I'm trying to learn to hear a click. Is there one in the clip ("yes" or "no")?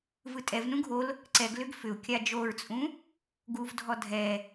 yes